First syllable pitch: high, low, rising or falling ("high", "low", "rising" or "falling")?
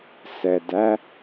low